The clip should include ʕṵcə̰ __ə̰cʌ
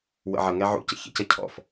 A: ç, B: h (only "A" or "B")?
A